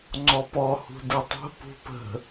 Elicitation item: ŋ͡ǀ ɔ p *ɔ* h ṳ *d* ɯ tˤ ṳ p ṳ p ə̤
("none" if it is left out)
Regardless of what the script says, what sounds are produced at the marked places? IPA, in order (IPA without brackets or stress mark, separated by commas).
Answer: ɔ, d